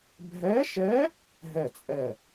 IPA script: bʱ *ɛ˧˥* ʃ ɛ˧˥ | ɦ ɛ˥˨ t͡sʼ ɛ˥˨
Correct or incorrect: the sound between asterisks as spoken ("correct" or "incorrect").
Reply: correct